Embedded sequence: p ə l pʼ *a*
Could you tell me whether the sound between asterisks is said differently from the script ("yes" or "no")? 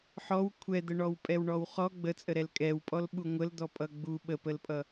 yes